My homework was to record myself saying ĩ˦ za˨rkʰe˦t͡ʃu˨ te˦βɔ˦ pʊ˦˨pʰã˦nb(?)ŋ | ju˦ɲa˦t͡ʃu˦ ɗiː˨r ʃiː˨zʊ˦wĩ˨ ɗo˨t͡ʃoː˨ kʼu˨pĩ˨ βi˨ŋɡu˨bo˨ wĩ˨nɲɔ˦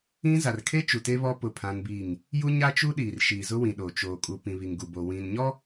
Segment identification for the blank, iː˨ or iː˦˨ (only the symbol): iː˦˨